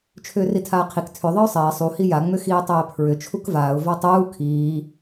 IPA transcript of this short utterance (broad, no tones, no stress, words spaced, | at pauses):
t͡ʃʰʏːritʰaːqʰik tʰʏ ðˤɯʊ̯sˤɛː sˤu hija ŋ͡mʏxiːtˤɛːpʰɹʏ t͡ʃʰukvaːʊ̯ vatˤuː kʰiː